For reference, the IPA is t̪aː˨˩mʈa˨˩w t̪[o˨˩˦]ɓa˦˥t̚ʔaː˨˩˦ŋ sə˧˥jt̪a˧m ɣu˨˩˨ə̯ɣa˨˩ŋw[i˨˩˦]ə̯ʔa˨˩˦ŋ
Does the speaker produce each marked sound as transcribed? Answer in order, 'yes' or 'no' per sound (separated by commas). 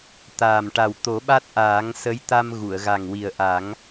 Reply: yes, no